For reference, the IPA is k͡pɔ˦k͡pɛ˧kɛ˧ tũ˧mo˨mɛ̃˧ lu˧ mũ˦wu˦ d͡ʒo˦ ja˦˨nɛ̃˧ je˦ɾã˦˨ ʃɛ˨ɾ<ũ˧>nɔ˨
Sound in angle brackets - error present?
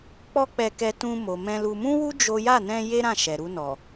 yes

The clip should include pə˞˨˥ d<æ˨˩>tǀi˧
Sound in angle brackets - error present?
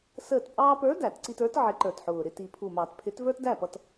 yes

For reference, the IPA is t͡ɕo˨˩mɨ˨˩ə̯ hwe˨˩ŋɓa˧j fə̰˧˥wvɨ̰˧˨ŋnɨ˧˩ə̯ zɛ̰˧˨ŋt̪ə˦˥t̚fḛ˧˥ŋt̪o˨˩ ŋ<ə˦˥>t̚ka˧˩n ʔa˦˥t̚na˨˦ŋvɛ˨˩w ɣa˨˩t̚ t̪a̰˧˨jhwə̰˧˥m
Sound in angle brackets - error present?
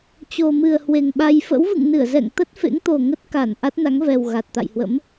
no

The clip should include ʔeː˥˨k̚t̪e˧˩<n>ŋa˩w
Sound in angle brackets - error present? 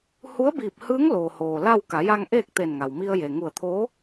no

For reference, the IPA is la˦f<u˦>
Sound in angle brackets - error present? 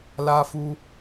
no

